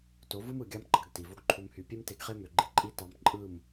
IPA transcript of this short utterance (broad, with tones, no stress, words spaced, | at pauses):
to˨˦vɯ˦mɯ˨ ɡʲɑ˦mɡ͡ǃɑ˧ɡ ti˨vo˦ɡǃʰu˧mhy˧ pʲe˦mte˧ɡχe˦ mø˨ɡ͡ǃi˧ǃʼi˦ tɑ˧mǃʼɯ˦˨m